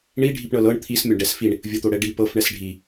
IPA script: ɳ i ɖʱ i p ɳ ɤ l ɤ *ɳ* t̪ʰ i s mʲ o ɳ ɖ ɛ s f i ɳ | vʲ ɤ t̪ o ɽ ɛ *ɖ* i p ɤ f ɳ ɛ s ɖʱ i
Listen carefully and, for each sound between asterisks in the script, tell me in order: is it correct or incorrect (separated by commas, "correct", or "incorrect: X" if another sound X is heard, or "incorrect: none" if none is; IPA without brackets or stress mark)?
correct, correct